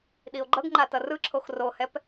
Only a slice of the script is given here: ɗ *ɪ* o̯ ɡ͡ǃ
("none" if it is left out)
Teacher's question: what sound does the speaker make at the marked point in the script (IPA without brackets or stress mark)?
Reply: i